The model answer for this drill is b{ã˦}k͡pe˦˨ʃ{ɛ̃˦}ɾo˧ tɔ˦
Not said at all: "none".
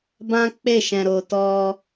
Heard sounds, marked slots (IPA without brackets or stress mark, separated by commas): ã˦, ɛ̃˧